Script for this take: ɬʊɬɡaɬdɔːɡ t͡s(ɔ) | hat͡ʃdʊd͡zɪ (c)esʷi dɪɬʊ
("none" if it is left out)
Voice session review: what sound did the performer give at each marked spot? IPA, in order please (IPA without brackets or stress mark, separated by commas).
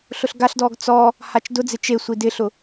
ɔ, t͡ʃ